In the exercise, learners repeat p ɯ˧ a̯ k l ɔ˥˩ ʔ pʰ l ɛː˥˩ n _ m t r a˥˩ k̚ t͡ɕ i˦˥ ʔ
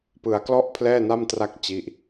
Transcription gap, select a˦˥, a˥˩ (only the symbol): a˥˩